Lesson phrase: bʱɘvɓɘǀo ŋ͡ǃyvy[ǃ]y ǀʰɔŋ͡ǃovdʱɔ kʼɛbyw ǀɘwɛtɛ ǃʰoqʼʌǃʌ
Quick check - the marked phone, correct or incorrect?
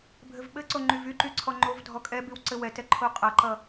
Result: correct